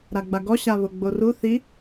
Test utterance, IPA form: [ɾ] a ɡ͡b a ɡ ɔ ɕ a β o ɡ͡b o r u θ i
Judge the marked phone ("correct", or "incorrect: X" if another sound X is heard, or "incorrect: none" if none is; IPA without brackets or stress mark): correct